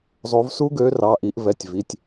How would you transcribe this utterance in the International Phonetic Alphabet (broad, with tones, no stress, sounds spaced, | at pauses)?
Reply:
zˤ o˨˦ v s u˦˥ ɡ ø˨˦ r ɑ˩˧˩ ʔ i˧˩˧ ʔ v ɛ˩˧˩ tʲ v i˩˧˩ tʲ